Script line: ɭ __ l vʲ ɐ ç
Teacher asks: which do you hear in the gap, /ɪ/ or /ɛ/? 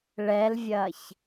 ɛ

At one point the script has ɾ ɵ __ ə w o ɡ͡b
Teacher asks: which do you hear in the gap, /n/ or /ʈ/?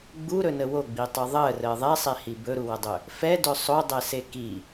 n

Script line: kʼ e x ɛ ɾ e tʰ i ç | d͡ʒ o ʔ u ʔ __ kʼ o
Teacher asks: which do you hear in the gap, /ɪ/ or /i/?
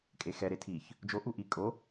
i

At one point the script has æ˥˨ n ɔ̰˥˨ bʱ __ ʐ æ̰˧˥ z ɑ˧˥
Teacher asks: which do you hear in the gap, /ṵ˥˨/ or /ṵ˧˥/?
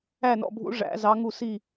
ṵ˧˥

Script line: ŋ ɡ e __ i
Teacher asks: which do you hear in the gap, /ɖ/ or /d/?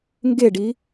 ɖ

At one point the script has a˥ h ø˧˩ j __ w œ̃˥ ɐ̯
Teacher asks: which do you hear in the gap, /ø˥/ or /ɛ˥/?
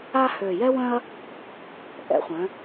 ɛ˥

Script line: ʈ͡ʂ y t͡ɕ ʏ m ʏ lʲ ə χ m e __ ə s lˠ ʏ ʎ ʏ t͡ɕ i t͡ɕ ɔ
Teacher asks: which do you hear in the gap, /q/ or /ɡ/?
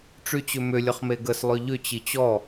ɡ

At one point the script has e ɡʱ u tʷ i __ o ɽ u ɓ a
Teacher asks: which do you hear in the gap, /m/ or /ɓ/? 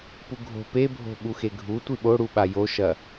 ɓ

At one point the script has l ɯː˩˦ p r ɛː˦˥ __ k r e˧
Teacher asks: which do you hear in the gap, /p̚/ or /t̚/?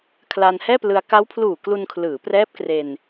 p̚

